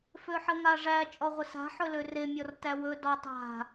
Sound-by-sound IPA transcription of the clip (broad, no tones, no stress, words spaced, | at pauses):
føħəŋaʐæ t͡ʃʼɔʁʷəsa̤ ħɵløre mʲɔrtæwɵ dɔtˤa̤